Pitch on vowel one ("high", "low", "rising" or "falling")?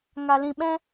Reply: low